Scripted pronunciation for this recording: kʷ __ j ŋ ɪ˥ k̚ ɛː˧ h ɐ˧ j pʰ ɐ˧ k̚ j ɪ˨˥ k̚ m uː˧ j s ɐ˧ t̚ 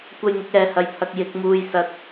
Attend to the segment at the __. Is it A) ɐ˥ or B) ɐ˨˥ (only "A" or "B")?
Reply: A